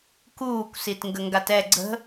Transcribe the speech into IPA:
k uː kʷ s i t ŋ ɡ ə ŋ ɡ a t ɛ ɡ͡ǀ ə̤

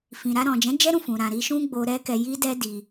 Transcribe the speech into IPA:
f ĩ˨ ɾ a˧ ɾ ɔ̃˨ d͡ʒ ɛ̃˨˦ d͡ʒ ɛ˦ ɾ ũ˦˨ f ũ˨ ɾ ã˨ ɾ i˧ ʃ ũ˧ ɡ͡b o˧ ɾ ɛ˦ k ɛ˧ j i˦ d ɛ˦ d i˧

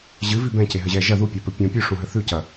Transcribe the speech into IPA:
ʑ ɨ v i b ɛ̃ c e ɦ ɘ ʑ ɛ ʒ ɐ ð u pʲ a p ɘ pʲ ũ pʲ ʉ ʂ ũ ɦ ɘ θ ʉ c ɐ

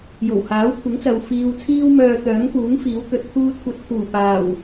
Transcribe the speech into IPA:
j o˨˩ w h aː˨˥ w kʷʰ ɪ˨˥ ŋ t͡s ɐ˨ w f iː˧ w t͡sʰ iː˥ w m œː˧ t̪ œː˨˥ ŋ p uː˨˥ ŋ f iː˨˥ w t̪ ɵ˨˥ t̚ t̪ʰ uː˥ t̚ kʷ ɐ˧ t̚ kʰ uː˨˩ p aː˨˩ w

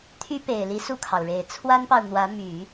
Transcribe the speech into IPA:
t̪ʰ y˥ p e˨˩ ɪ̯ l i˧˥ s u˥˩ kʰ ɑ˩ ʊ̯ ɻ e˨˩ ɪ̯ t͡sʰ w a˥ n p ɑ˨ ʊ̯ n̪ w ä˧˥ m y˨˩˦

